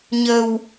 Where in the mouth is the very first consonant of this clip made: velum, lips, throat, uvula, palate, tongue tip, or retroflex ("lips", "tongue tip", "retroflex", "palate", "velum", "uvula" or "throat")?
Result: palate